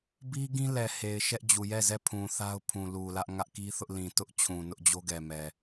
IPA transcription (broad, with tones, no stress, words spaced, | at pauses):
bi˦ɡĩ˦lɛ˨ he˨ɪ̯ʃɛ˦ʔd͡ʑu˨ jɛ˦˨zɛ˦˨ pʰũ˨θa˦ʊ̯ pʰũ˨lu˨lä˦ʔ ŋä˦ʔki˦θʊ˦ʔ lĩ˨tʊ˦ʔ t͡ɕʰũ˨nʊ˦ʔd͡ʑo˦ ɡɛ˨mɛ˨